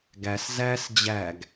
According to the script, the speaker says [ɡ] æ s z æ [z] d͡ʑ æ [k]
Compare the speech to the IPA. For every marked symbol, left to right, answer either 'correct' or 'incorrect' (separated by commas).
correct, incorrect, incorrect